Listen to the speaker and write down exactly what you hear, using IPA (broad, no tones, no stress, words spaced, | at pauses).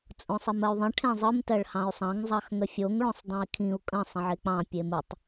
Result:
t͡sʼõsˤimɜy̯ðˤə̃ ʈʰẽzˤɯm tɜɭhɑ̃y̯sˤɑ̃ŋ zˤɑxŋəfʲoŋ ɭõsˤdˤõi̯kʰĩu̯ kʼə̃ sˤə̃ʕek͡pɑ̃ pʲemɯtˤ